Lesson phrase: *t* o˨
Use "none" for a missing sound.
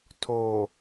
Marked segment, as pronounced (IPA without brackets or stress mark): tʰ